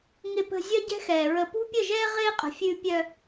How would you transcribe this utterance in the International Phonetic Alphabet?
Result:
ŋ ɪ˨ p ə̤˨ zʲ œ˦ ɟ ɛ̤˦ x ɛː˨ ɹ ə˨ p ṳ˦ pʲ ə˦˨ ʒ ɛː˦ ʁ ɪː˦ qʼ ə̤˨ fʲ ʉ˦ pʲ œ˦

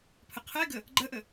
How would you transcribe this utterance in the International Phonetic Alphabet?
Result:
pʰ ə qʰ ɛ ɡ ə | ɡ͡ǃ ə ʔ ə

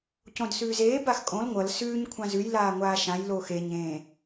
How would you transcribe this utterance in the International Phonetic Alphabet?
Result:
c õ d s ʉː z eː b a x kʼ õ l ŋʷ ʌ l s ʉː ɲ kʷʰ ã z ʉ j l aː ŋʷ aː ʃ ã j l oː x e ɲ ẽː

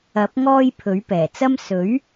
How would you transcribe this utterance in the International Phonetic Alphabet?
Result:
ɐ˨˥ p̚ ŋ ɔː˥ j pʰ ɵ˨˥ ɥ p ɛː˨˩ t͡s ɐ˥ m s ɵ˨˥ ɥ

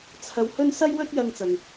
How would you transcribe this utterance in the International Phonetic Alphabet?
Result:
t͡sʰ ɐ˧ w h ɵ˥ n s ɐ˥ j w ɵ˥ t̚ j ɐ˧ ŋ t͡s ɐ˨ ŋ

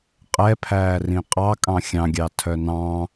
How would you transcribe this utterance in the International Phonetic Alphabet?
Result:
qʼ ɛ pʰ æː r ĩ qʼ ɑ kʼ ɑ̃ xʲ ɑ̃ ɡʲ ɑ tʰ œ n ɑ̃

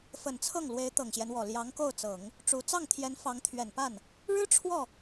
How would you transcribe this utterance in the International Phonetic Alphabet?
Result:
f ə˨˩ n t͡sʰ ɤ˥˩ ŋ l w e˧˥ ɪ̯ t̪ ɤ˨˩ ŋ ɕ j ɛ˦ n w ɔ˨˩ l j ɑ˧˥ ŋ k o˥˩ ʊ̯ t͡s ɤ˨˩˦ ŋ | ʈ͡ʂ u˧˥ t͡s ɑ˥˩ ŋ t̪ʰ j ɛ˧˥ n f ɑ˧˥ ŋ t̪ʰ ɥ ɛ˨˩ n p a˥˩ n | ɻ ɻ̩˥ ʈ͡ʂʰ w ɔ˥˩

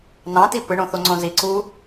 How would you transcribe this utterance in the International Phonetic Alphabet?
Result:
n ɑ̃ t i p ɯ ɳ õ θ o ŋ͡ǀ õ z i ǀ u

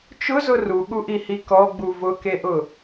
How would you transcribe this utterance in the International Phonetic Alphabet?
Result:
t͡ʃ ʊ z ʊ r u ɠ u ʔ i h i k ɔ ɡ͡b u v ʊ k e ʔ ʊ

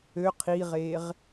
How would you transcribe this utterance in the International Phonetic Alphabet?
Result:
ø qʰ i ʁ e ʁ

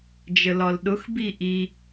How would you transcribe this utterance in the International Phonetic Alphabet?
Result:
d͡ʒ ə l ɒ l ɗ ʊ x b i ʔ i

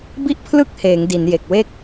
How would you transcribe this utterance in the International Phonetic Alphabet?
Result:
b i˥˩ ʔ pʰ l ɯ˥˩ k̚ h eː˩˦ ŋ d i˩˦ n j e˨˩ k̚ w e˥˩ k̚

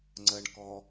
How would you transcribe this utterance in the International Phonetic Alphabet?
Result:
ŋ͡ǀ ə ɳ k ɔ

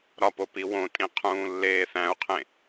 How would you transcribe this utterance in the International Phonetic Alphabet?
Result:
ɾ ɒ p o p i w õ tʼ ĩ qʰ ũː lː eː θ æ̃ u̯ qʰ ẽ

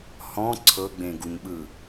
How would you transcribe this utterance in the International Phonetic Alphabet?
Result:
h ɔ̃ ǀʰ ɤ ɡ͡b ẽ ɡ u ɲ ɓ ɯ

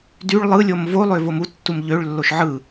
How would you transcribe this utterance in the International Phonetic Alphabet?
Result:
d y ɭ lˠ ɯ lʲ o m v o lˠ ø v o m u tː u m ʎ ø ɭ lː o ʃ ʕ ɯ

